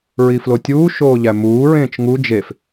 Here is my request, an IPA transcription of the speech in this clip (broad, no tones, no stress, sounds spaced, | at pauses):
ɹ i f l o tʲ uː ʃ oː ʎ æ m uː ɹ ẽː t͡ʃ ŋ u d͡ʒ e f